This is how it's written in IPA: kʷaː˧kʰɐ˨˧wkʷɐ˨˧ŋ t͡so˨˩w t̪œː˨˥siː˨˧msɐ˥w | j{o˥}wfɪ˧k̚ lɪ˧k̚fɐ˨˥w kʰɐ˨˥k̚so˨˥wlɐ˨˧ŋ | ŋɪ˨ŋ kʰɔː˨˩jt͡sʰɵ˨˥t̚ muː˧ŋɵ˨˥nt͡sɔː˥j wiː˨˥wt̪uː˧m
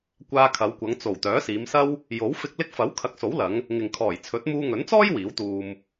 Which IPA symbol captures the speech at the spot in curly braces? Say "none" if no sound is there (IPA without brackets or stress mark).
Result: o˨˥